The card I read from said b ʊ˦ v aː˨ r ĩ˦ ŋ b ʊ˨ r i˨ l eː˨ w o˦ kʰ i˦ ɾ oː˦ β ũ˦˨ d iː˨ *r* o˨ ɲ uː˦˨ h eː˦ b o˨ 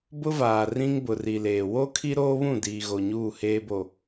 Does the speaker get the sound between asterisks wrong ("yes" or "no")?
yes